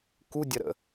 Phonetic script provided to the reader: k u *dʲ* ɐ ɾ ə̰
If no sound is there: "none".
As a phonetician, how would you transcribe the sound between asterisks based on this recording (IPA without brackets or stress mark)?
dʲ